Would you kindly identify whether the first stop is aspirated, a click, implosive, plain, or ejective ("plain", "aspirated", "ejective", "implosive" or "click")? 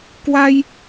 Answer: plain